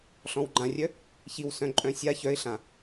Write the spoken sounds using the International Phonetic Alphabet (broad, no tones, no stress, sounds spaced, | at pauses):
ɬ ɔ̃ w ɡ͡ǃ ã rʲ œ | ç i w s œ̃ ǃʼ œ̃ sʲ a ç œ ɪ̯ ɬ ã